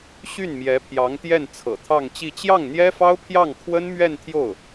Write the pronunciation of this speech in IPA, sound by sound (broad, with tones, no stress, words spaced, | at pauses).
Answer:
ɕy˥˩n mjɛ˧˥pʰjɑ˧˥ŋt̪jɛ˥˩n t͡sʰɤ̰˨˩t̪ʰɑ˥˧ŋt͡ɕi˥˧ t͡ɕjɑ˥˩ŋn̪jɛ˥fɑ˥ʊ̯pʰjɑ˥˩ŋ kʰwə˥nmɥɛ˥˧nt̪ʰjo˥˩ʊ̯